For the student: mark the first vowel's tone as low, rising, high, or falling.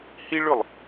high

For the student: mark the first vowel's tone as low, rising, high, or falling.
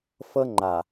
high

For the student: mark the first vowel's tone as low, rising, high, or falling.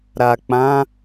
low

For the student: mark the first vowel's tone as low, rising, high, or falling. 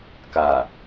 low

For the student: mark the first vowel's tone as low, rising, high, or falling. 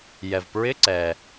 low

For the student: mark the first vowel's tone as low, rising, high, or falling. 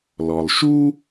low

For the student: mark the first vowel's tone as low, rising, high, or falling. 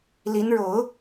rising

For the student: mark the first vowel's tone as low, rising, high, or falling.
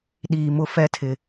low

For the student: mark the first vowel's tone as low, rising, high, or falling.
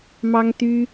high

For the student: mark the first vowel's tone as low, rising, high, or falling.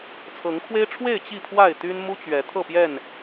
rising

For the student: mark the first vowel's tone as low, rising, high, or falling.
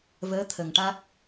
rising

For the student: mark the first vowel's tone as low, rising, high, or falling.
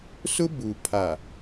high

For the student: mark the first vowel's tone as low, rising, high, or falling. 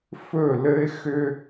falling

